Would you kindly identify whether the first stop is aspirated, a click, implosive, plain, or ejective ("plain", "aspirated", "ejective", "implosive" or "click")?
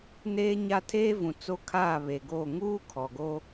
aspirated